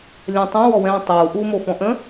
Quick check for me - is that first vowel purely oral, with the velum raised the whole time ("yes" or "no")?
no